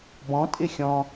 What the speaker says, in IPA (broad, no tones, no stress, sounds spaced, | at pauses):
b ɔ̃ tʼ ɪ xʲ ɔ̃